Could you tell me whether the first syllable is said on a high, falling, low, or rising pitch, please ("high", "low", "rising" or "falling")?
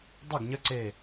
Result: falling